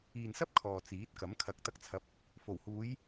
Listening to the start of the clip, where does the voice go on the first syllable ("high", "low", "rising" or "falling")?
low